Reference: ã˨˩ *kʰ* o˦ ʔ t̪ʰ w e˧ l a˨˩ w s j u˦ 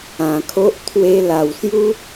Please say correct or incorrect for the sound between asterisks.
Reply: correct